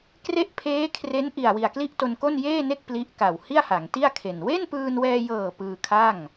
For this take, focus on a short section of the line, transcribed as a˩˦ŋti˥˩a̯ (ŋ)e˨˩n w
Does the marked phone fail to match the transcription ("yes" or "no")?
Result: yes